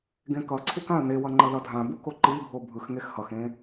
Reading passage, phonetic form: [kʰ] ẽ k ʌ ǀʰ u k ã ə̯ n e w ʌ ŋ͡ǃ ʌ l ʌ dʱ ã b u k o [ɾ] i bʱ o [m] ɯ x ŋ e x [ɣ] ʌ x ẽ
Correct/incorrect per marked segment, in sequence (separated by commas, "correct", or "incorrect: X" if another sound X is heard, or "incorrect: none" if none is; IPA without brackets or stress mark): incorrect: ɡ, incorrect: ǃ, incorrect: bʱ, incorrect: h